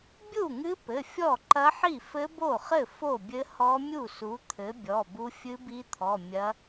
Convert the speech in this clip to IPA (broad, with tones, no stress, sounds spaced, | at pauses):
bʲ u˥˩ ŋ ɨ˦˥ p ɘ˩˧˩ fʲ ɔ˥˩ ǃ ɐ˦˥ ħ i˥˩ f ɘ˦˥ b o˥˩ χ ɘ˥˩ f o˥˩ bʲ ɘ˦˥ h ɔ˦˥ mʲ u˥˩ s u˨˥ t̪ʰ ɘ˨˥ bʲ ɔ˩˧˩ b u˦˥ fʲ ɨ˦˥ b i˦˥ t̪ʰ ɔ˩˧˩ mʲ ɐ˦˥